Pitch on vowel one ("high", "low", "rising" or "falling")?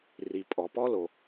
low